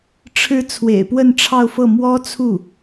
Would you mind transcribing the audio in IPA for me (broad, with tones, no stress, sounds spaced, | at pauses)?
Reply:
ʈ͡ʂʰ ɻ̩˧˥ t͡sʰ w ḛ˨˩ ɪ̯ p w ə˥˧ n ʈ͡ʂʰ ɑ˥˧ ʊ̯ f ɤ˥˩ m w ɔ˥ t͡sʰ u˥˩